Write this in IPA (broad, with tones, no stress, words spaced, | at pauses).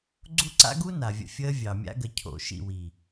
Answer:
ɡ͡ǀu˦ǀa̰˦ɡu˦ na˨vʲə̰˧fʲəː˦ vʲɑ˨mʲa̰˦ɡə˧ cʰo̰˨ ʃḭ˦˨wi˨